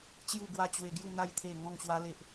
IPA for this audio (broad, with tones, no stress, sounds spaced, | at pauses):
t͡ɕ j u˥˧ ɡ w a˦ t͡ɕ w e˧ ɡ j u˥˧ n̪ a˥˧ j t̪ʰ e˥˧ ŋ ɔ̃˥˧ ŋ ɕ w a˦ l e˦ ʔ